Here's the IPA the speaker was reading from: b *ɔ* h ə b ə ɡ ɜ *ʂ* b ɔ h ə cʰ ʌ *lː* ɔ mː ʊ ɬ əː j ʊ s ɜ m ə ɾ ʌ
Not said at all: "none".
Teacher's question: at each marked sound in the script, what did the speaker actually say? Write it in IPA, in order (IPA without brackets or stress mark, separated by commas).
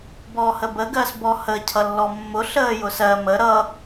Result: ɔ, s, lː